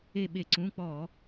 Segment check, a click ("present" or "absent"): present